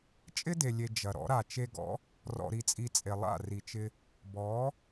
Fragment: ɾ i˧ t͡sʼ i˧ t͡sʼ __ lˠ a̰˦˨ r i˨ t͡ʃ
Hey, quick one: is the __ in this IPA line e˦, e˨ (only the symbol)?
e˨